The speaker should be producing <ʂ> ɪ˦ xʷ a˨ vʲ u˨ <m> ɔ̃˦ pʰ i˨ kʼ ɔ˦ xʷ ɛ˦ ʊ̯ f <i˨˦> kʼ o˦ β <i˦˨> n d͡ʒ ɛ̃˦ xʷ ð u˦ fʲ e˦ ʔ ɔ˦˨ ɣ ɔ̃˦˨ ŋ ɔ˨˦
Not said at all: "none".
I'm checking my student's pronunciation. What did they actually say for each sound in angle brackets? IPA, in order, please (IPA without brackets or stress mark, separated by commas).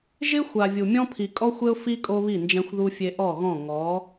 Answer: ʒ, mʲ, i˦, i˦˨